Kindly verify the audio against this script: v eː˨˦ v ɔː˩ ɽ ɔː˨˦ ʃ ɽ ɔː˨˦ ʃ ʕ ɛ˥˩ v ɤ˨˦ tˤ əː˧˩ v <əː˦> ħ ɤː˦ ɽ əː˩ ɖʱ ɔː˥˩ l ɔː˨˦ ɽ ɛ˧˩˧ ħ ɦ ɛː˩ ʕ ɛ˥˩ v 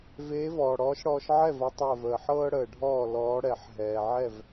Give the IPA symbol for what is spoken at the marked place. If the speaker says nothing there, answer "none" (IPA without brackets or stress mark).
əː˩